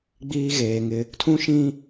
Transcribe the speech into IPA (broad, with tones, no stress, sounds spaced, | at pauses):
ɡ͡b iː˦ ɣ eː˨ ŋ ɪ˦ | tʰ ũ˦ ʃ ĩ˦